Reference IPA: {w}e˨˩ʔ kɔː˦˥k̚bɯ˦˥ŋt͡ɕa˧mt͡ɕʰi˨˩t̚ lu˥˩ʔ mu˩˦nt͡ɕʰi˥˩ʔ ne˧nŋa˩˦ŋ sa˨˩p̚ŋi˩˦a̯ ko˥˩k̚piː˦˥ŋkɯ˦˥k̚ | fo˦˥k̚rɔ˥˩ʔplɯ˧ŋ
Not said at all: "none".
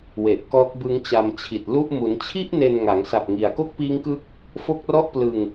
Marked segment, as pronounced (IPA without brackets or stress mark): w